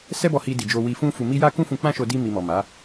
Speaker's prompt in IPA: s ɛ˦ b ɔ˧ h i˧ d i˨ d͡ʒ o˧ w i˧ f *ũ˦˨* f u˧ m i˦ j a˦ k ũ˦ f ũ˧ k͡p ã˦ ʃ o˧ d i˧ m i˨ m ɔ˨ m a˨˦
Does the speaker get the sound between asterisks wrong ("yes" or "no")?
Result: yes